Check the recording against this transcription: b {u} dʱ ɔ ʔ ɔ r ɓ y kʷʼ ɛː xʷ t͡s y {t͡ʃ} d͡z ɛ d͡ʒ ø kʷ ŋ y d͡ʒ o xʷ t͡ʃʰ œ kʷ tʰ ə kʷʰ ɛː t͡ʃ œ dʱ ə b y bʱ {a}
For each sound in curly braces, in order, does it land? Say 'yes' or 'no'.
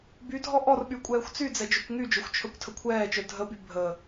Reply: no, no, no

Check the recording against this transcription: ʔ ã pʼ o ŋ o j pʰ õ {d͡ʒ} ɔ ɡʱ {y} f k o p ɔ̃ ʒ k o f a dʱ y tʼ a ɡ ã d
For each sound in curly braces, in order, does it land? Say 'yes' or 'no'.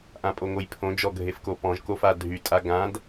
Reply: yes, no

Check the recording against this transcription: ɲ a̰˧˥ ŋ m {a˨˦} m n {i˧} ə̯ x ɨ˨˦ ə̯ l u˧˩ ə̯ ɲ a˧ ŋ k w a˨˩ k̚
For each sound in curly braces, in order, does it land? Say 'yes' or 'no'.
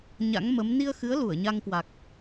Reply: no, yes

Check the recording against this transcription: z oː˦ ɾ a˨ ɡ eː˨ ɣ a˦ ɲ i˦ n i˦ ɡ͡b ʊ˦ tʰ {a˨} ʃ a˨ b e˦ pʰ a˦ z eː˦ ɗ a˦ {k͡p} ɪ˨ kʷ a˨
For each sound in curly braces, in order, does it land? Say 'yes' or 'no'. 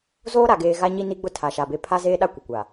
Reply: yes, no

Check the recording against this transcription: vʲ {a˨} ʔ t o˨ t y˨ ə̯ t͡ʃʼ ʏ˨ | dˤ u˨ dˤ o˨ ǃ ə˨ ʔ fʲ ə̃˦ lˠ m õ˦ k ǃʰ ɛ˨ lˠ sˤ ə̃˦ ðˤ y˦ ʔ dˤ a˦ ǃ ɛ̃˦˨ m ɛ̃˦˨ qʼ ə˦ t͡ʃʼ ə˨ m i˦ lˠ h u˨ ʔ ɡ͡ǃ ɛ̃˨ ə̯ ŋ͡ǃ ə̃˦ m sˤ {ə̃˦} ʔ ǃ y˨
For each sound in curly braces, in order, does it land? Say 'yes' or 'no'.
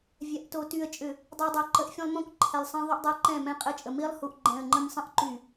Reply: yes, yes

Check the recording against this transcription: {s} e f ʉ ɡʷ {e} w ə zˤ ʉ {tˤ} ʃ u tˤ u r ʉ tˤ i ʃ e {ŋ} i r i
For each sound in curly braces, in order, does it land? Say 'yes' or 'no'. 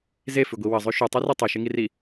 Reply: no, no, no, yes

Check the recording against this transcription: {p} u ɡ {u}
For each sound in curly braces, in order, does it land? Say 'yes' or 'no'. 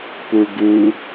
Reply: yes, yes

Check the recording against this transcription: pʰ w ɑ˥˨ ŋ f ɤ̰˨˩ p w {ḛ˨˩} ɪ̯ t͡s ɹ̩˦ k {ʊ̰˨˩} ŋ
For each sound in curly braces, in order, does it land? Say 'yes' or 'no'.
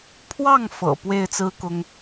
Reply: no, no

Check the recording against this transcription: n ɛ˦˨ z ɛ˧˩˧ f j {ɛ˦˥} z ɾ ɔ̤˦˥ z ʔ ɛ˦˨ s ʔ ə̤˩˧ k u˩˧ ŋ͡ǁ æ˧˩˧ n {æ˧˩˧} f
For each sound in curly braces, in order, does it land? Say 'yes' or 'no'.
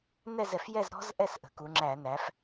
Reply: no, no

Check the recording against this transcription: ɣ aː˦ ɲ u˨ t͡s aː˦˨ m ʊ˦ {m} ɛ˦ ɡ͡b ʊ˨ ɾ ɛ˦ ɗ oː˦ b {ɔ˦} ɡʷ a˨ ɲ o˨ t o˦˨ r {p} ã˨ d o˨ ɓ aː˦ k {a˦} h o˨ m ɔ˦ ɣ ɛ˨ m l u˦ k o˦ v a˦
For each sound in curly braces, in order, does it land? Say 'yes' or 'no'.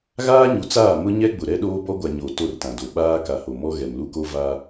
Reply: no, yes, no, no

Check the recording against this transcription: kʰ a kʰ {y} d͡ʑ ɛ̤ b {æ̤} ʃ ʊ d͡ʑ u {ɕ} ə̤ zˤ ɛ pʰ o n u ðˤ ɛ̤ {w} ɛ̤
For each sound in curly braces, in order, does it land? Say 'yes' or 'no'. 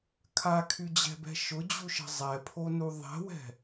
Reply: yes, no, no, yes

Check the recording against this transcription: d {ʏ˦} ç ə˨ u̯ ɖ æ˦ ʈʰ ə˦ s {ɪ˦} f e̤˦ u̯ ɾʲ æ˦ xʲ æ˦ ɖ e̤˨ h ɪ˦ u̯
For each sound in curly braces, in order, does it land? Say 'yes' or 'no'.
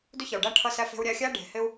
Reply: yes, no

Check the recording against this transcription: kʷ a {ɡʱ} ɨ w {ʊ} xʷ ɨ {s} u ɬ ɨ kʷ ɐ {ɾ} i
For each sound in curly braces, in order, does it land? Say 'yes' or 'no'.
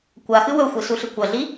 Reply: no, no, yes, no

